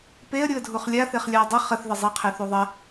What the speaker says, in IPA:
peə̯ ɾʲuə̯dʱuχlʲa θeχlʲaə̯dˤə χəθ ðəzˤe qʰeθuðˤɐ

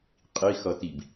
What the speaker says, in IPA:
qʼixʌtib

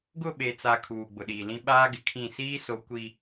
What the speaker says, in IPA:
ɡʊ˦˨ɓe˨t͡sa˨ kʰuː˨ɡ͡bʊ˨ɗiː˨lĩ˦ ɓaː˦ɡɪ˨kʰĩ˦˨ siː˦so˨˦ kʷi˦

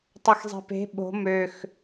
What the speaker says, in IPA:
tˤɤxzˤe̤pe̤ ɓo̤ møx

